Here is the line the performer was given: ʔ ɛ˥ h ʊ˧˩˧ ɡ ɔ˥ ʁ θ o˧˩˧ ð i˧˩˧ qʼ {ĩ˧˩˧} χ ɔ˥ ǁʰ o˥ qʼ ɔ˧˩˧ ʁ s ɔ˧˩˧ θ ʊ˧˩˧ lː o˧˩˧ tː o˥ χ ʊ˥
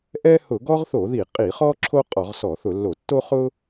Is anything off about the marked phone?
yes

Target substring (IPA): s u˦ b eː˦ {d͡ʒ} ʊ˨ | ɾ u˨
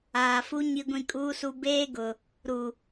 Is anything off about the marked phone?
yes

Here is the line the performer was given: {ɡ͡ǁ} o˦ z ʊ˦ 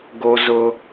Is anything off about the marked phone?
yes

